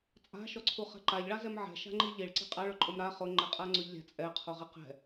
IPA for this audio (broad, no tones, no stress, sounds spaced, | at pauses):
t͡sʼ a̤ ʃ ɔ ǀʰ u χ ɛ̤ ǃ a ʎ ɭ a z ɛ m ʕ ɛ̤ ʃ a̤ ŋ͡ǃ i ʎ i ɭ ǀ i̤ qʼ a ɭ ʊ ǃʼ ʊ m ɾ a χ ʊ ŋ͡ǃ ɛ qʼ a ŋ͡ǀ ʊ ʎ lʲ a̤ t͡sʼ ɛ qʰ o ʁ i q ɛ̤